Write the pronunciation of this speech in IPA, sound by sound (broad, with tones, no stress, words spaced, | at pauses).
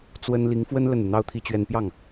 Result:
t͡swə˥n li˧˥ŋfwə˥n lə˥˩nu˩n̪ɑ˥ʊ̯t̪ʰi˥˧ t͡ɕɥɛ˥˧n pjɑ˥˩ŋ